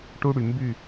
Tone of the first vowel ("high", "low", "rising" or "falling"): high